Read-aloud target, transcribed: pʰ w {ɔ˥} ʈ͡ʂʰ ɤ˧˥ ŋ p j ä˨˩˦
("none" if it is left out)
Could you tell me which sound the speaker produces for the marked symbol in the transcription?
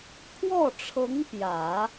ɔ˥˩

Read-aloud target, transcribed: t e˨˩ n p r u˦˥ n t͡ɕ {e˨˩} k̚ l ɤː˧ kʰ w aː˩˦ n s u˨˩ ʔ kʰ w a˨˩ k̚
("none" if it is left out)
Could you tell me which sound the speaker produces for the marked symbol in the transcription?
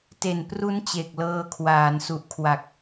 e˨˩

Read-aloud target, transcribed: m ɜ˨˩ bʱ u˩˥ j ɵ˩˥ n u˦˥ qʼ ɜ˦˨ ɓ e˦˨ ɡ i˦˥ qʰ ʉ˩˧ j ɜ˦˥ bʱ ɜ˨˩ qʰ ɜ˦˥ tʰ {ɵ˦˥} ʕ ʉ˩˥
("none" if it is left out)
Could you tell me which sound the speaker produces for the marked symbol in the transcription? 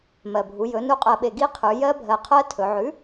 ɵ˩˧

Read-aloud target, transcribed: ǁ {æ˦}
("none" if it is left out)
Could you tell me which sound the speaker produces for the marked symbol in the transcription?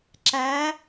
æ˨˦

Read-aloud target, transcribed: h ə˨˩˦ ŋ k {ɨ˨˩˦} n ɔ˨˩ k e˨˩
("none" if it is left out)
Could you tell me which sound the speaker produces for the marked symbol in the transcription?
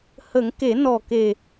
e˨˩˦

